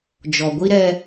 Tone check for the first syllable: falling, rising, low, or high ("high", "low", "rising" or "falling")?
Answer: low